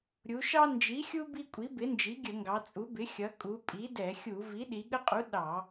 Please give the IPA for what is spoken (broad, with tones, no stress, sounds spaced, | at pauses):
ɾʲ u˩˧ ʃ ɑ˦ n d͡ʒ i˩˥ xʲ u˦ b i˦ kʷʼ i˩˥ b ɪ˩˥ n d͡ʒ i˩˥ ɡʲ ə˧˩˧ ŋ ɡ ɑ˩˧ t͡sʼ u˩˥ b ɪ˩˥ xʲ ʌ˩˧ kʼ u˩˧ pʼ i˩˥ d ɛ˧˩˧ xʲ u˧˩˧ v i˩˥ ɗ i˩˧ ɠ ə˦ qʼ u˩˥ ɗ ɑ˧˩˧